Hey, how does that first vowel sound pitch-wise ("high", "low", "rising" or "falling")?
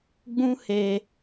high